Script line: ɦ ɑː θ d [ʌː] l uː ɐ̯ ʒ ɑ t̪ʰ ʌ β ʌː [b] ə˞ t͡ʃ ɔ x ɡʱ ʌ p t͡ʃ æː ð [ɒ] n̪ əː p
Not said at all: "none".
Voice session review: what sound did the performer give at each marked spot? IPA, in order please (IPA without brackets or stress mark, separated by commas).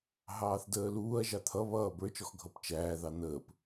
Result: əː, b, ɑ